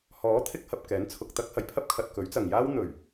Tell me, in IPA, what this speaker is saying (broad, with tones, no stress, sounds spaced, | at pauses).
h ɔː˨˥ t̪ʰ ɪ˧ k̚ h ɐ˨ p̚ k ɛː˨˥ n t͡sʰ ʊ˨ k̚ t̪ ɐ˥ k̚ h ɐ˨˩ j pʰ ɐ˥ p̚ kʰ ɐ˨ t̚ k ɵ˨˥ ɥ t͡s ɐ˨ ŋ j aː˥ w n̪ ɵ˨˩ ɥ